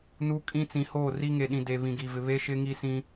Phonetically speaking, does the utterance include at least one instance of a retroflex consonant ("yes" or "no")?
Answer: no